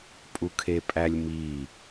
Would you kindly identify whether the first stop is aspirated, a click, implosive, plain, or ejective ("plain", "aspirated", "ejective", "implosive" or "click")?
ejective